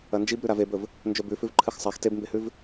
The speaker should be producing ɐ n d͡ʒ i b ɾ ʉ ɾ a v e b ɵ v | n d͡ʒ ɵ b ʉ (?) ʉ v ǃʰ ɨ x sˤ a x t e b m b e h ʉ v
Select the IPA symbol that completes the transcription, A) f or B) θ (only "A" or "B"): A